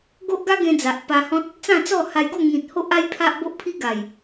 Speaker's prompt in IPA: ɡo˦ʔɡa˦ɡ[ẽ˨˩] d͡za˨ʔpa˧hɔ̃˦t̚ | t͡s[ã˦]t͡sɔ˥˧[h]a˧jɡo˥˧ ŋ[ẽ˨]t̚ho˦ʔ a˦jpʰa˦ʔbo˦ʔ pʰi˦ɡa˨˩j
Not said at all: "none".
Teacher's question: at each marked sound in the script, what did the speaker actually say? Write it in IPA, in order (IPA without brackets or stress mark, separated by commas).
ẽ˧, ã˥˧, h, ĩ˨